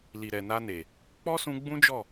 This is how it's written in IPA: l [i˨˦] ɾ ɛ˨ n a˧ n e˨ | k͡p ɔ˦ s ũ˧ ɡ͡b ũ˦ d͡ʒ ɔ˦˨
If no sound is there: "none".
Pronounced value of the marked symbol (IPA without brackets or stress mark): i˨